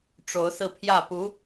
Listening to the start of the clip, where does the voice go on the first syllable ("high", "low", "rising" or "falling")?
rising